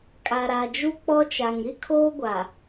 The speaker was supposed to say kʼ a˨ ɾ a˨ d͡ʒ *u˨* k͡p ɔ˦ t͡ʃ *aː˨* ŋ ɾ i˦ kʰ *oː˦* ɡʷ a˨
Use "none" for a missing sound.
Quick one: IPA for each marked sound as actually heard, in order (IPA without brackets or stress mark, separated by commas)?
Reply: u˦, a˨, oː˦